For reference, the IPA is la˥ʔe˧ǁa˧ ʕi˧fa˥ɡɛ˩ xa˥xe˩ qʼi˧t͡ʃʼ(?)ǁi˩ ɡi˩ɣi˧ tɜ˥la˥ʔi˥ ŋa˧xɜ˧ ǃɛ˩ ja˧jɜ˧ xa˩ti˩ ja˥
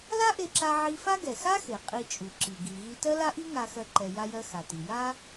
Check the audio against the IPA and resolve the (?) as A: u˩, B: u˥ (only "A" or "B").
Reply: A